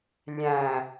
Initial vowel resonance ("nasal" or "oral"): nasal